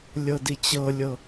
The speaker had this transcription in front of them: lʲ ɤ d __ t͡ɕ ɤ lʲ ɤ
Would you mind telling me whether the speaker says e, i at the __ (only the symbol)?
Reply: i